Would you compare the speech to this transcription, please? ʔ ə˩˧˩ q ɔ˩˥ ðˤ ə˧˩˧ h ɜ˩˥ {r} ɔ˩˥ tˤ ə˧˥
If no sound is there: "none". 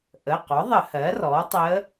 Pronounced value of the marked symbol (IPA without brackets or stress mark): r